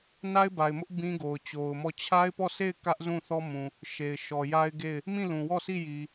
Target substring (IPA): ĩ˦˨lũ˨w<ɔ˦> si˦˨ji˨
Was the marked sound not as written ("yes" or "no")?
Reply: yes